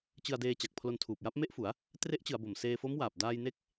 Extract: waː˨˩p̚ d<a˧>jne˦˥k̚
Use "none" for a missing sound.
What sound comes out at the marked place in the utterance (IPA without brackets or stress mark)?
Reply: aː˧